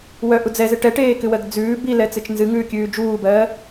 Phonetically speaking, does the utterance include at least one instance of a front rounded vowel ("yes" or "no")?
yes